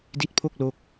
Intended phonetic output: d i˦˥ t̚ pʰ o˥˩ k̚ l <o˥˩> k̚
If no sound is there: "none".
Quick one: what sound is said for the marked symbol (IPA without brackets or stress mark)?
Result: o˦˥